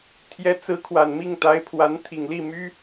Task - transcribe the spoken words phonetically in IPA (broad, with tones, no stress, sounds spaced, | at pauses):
t̪ʰ j ɛ˧˥ t͡s ɹ̩˧˥ kʰ w a˨˩ n m i˥˩ ŋ t̪ a˧˥ ɪ̯ pʰ w a˧˥ n t̪ʰ i˨˩ ŋ l i˥˩ m y˥